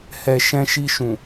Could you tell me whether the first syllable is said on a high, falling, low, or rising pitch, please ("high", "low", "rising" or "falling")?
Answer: low